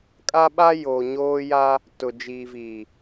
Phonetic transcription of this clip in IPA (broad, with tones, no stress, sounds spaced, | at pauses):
kʼ a˦ ɓ a˦ j oː˨ ɲ oː˦ j a˦ | t ʊ˨ d͡ʒ iː˨ v iː˨